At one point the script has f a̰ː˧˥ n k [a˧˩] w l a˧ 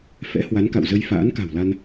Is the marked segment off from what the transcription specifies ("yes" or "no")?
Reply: yes